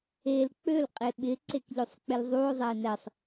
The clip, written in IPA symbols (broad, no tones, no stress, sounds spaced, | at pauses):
e l k͡p ø l qʼ e ɓ ɪ ǀ e k ʎ ø sˤ k͡p ɪ l zˤ u o̯ zˤ ɛ e̯ n ɛ sˤ